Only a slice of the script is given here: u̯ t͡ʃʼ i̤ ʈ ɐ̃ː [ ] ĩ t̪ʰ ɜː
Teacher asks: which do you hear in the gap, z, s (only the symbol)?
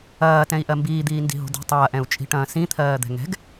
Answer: s